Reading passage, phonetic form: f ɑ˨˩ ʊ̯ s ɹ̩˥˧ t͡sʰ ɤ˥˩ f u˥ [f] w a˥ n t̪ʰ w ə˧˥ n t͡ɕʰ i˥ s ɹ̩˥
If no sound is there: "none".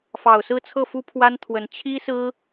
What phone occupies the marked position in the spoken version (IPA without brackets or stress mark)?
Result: pʰ